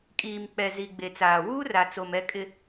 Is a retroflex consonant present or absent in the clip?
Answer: absent